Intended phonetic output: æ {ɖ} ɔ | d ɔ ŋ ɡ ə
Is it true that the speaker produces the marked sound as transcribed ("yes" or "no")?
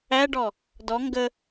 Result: yes